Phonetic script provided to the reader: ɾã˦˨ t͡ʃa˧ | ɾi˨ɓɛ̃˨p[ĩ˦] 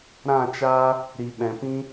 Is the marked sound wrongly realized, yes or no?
no